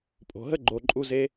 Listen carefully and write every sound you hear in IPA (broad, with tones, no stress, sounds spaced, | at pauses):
pʼ o̤˨ ɦ ə˦ ɡ͡ǃ o˨ ǃʼ u˧ z e˧